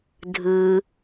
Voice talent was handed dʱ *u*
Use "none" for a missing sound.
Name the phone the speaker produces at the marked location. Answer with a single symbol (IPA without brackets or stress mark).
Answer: ɯ